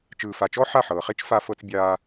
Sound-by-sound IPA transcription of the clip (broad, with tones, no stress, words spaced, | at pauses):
t͡ʃɯː˨fa˨t͡ʃɔ˦ ħa˦˨ħɤː˨χe˦t͡ʃ fa˧fɤ˧t͡s bʲaː˧